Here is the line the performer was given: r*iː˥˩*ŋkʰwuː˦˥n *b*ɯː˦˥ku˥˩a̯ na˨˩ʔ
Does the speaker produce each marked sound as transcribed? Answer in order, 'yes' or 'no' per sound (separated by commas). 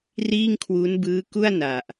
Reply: yes, yes